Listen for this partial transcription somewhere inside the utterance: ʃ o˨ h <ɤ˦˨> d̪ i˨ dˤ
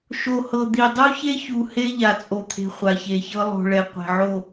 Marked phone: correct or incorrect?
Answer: incorrect